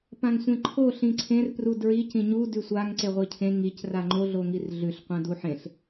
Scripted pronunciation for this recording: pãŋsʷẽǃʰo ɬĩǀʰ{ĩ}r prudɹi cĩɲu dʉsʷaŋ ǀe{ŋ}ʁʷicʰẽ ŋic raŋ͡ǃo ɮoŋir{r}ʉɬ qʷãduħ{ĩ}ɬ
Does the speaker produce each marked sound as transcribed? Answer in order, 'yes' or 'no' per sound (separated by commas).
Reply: no, no, no, no